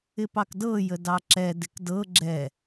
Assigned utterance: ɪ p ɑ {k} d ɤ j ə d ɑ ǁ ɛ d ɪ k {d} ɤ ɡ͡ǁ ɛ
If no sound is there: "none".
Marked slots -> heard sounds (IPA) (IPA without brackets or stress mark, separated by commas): k, d